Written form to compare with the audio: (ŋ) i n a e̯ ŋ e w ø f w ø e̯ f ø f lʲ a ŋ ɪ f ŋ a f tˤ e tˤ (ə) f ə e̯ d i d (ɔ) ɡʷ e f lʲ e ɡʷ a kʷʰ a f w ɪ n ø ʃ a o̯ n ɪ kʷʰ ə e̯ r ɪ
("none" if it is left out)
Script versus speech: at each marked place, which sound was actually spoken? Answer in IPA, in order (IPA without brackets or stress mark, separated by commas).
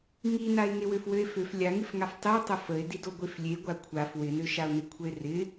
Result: ŋ, ə, o